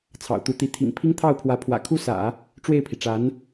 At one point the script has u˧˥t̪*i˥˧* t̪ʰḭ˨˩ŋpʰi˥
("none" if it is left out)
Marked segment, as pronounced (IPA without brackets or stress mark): i˧˥